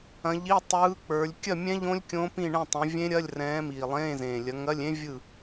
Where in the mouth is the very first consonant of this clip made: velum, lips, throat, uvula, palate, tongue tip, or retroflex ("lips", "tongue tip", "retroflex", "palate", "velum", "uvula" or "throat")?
palate